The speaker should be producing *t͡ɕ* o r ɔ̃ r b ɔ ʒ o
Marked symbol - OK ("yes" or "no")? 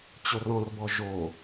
yes